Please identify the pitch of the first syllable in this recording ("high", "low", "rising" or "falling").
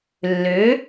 rising